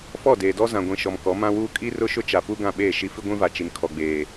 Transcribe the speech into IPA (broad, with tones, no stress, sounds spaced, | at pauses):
f ɔ˦˨ d eː˨ d ɔ˦ z ã˨ ɡʷ ĩ˨ ʃ ɔ˨ m k ɔ˨˦ m ã˦ w uː˦ kʼ i˦ r ʊ˦ ʃ ʊ˦ t͡ʃ a˨ p u˦ ɡ ã˦˨ ɓ eː˦˨ ʃ i˦ f i˦ ɡʷ ĩ˦ v a˨ t͡ʃ i˨ n kʰ ɔ˨ ɡ͡b eː˨